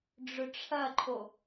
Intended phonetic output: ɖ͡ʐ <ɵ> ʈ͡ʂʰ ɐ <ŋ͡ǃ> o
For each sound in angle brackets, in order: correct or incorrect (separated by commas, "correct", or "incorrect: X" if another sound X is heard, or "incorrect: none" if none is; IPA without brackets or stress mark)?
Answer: correct, incorrect: ǃʰ